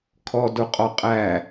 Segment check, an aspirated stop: present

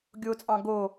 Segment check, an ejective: present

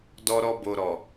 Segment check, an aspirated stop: absent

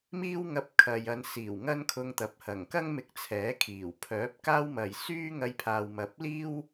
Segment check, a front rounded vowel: present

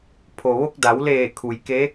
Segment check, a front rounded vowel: absent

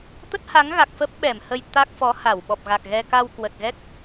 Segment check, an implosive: present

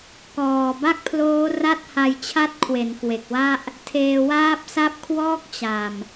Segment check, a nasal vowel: absent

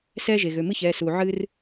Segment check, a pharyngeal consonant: present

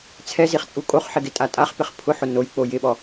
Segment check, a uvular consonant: present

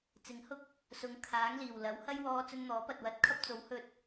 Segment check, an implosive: absent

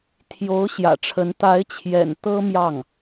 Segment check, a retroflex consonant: present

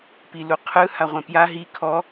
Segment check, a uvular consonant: present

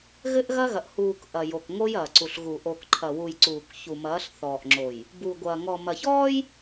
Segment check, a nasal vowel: absent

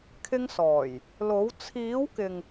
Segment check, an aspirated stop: present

